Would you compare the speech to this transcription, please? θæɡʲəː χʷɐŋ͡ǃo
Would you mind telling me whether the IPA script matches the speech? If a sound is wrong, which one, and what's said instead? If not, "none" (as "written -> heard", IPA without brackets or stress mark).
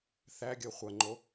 none